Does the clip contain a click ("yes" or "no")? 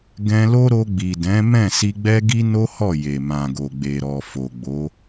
no